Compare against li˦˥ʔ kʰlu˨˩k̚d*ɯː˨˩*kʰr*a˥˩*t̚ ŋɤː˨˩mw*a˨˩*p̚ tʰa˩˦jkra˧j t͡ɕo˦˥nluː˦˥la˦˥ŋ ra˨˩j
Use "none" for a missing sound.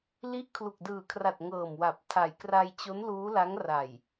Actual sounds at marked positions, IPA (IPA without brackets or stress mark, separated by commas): ɯː˨˩, a˨˩, a˨˩